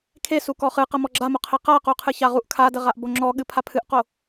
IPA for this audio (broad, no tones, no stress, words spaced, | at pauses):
kʰesu kɔχɨqə mɔɡ͡ǁamoqʰe qa quqʰɨçaʁuʔ kʰadəʁaʔbo ŋ͡ǁɔɠɨ pʰapʰɨʔqo